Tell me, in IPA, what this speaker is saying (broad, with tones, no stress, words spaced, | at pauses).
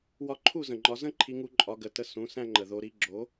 wɒ˧ǃʰu˥˩zə̃˩ŋ͡ǃɒ˩˥ zə̃˥ǃʰi˧ŋu˧ ǃʼɒ˩˥ɡə˩tə˧ sũ˩˥ sæ̃˧ ŋ͡ǃə˩ðo˩˥ɾi˩˥ ɡ͡ǁo˩˥